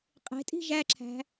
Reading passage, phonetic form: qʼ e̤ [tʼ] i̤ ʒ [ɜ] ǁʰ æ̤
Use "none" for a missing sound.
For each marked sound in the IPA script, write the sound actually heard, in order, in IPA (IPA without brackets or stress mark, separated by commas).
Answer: tʼ, æ